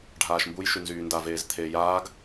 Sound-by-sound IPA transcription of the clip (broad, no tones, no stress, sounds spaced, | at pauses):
ɖʱ aː ʃ m b u j ʃ y n z yː n d a v eː z t̪ʰ eː j aː ɡ